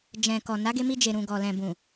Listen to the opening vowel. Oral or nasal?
nasal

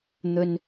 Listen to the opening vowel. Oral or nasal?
oral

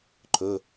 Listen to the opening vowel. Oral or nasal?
oral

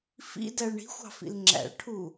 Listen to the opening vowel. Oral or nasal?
oral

